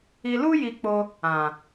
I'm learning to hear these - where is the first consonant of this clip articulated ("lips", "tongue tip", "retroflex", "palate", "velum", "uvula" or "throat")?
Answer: tongue tip